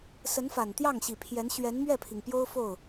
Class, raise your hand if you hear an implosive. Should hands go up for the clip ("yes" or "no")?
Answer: no